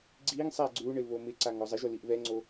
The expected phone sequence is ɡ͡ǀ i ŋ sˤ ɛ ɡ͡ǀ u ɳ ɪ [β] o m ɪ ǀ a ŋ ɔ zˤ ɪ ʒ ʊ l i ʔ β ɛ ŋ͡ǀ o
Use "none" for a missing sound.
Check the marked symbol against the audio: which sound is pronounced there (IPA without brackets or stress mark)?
β